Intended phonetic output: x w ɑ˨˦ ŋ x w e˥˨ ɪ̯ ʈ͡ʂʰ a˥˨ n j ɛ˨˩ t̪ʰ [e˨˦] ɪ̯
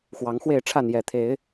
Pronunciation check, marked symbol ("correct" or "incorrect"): correct